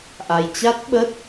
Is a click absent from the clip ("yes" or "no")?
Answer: yes